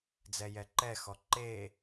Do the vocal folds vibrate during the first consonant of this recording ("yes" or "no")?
yes